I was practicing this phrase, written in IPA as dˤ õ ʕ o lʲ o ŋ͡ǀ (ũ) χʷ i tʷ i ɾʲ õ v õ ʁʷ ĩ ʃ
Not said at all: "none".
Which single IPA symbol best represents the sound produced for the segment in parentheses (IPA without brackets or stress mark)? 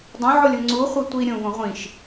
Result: u